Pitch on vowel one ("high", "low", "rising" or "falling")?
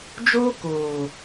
high